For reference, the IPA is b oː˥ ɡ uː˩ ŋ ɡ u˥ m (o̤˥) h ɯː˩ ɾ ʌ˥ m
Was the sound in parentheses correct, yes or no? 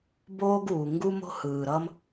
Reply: yes